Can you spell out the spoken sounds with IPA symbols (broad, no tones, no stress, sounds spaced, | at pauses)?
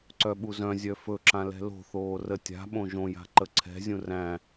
ǀ œ ɓ u z œ̃ zʲ œ f ɵ ǁ ã l ɛ̤ l o̤ θ oː r ə tʲ a̤ ɓ õ ʒ õ j a̤ ǃ ə ǀʰ ɛ̤ zʲ ũ r æ̃